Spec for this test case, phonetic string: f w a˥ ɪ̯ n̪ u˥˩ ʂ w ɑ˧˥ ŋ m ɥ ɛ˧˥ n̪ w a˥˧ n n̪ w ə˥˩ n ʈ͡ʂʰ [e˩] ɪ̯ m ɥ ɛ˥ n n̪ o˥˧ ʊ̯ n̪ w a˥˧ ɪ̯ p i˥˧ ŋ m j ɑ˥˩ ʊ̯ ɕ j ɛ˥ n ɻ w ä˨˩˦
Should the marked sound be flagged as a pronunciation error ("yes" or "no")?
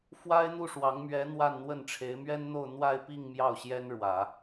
yes